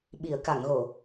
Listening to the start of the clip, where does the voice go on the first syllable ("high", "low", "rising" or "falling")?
low